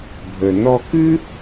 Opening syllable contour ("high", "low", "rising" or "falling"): low